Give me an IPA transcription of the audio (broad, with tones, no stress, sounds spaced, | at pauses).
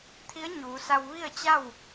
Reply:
t̪ʰ i˧˥ ə̯ ɲ uː˩˧ s a˧ w ʋ i˥˨ ə̯ t͡ɕ a˥˨ w